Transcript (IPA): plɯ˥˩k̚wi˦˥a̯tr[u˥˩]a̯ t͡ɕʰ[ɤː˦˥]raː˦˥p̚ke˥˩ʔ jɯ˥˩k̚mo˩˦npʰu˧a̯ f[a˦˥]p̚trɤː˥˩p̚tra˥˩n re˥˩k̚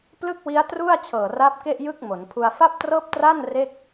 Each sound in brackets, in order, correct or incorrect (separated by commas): correct, incorrect, incorrect